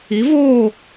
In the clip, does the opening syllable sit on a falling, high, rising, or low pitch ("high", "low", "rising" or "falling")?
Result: rising